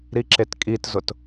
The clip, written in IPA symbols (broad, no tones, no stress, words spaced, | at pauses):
ɾiǁetkʼitzʊt